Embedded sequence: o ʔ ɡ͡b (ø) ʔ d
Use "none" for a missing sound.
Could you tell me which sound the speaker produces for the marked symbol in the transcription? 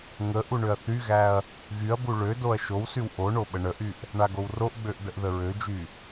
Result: ø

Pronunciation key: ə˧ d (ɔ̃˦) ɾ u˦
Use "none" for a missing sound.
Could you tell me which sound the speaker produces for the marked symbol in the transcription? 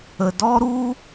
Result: ɔ˦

